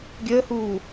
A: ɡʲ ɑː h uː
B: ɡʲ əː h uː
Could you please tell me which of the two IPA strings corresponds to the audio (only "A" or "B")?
B